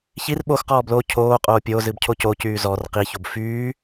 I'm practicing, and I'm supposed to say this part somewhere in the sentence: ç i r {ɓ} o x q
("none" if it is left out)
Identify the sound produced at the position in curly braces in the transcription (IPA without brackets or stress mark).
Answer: ɓ